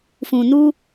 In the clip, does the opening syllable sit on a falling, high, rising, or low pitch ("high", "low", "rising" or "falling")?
low